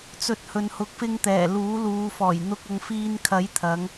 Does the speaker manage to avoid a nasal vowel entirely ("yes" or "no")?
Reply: yes